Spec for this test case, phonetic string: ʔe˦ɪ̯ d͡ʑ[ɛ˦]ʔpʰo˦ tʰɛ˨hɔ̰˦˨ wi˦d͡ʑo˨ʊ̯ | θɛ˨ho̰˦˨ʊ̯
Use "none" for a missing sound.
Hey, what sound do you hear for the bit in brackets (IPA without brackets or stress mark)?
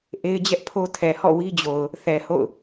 ɛ˦